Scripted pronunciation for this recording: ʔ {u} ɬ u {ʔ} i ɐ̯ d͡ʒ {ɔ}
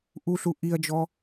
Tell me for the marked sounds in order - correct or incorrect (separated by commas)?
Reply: correct, correct, correct